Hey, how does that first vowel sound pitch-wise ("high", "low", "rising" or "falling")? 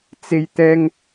high